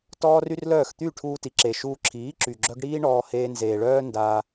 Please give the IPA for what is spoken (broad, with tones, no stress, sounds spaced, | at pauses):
t ɔː˦ r y˦ r l œː˦˨ x t̪ y˦˨ ʈʰ uː˧ t i˨ ǁ e˨ ʃ uː˧ ǁʰ iː˨˦ ǁ y˨ ɡ͡ǁ œ˦ ɡ ɽ iː˦ ɳ ɔː˧ h eː˧ n z eː˨ ɭ œː˦ n d aː˧